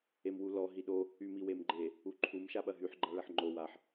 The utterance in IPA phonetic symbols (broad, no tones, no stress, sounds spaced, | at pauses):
e m w u l ɔ ɦ i ɗ o | y m i w e m ɡ͡ǃ e | u ǃʰ u m ʃ a ɓ ɐ ɦ y ħ ɡ͡ǃ a ɭ ɐ ħ ŋ͡ǃ o w a ħ